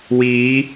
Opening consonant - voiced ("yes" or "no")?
yes